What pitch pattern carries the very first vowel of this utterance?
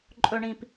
low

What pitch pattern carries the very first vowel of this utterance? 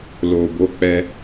low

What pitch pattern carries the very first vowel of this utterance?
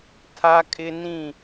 high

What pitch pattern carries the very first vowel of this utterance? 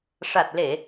low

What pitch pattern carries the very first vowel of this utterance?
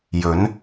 rising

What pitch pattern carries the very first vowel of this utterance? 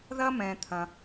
high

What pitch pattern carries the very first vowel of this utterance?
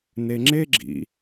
low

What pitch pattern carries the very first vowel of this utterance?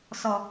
low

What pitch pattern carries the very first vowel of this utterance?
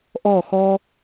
falling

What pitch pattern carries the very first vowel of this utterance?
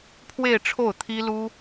falling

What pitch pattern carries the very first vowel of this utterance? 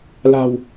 low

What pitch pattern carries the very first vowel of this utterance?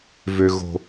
low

